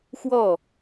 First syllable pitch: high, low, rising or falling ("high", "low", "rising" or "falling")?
falling